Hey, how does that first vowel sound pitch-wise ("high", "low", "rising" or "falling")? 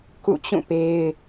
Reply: falling